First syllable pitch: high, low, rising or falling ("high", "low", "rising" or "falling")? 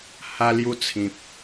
high